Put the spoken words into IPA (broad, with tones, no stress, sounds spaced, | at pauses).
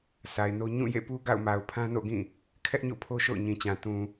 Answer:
s a˨ ɪ̯ n o˦ ɲ ũ˦˨ j ḛ˦˨ p u˦ ɡ a̰˦˨ ʊ̯ m a˨ ʊ̯ pʰ ã˦ n o̰˦˨ ɡ ĩ˦˨ | kʰ ɛ˦ ʔ ɲ o̰˦˨ pʰ o˦ ʃ o̰˦˨ ʊ̯ ɲ ĩ˨ t͡ɕ ã˨ t ũ˨